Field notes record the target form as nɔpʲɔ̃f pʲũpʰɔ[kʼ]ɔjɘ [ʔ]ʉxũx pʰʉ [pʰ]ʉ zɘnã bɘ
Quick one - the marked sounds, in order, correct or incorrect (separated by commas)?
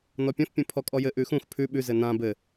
correct, correct, incorrect